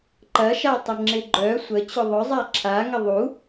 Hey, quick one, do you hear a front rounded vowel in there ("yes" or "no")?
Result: yes